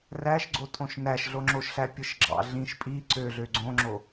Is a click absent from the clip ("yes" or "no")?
no